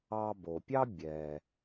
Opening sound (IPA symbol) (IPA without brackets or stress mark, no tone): ɑ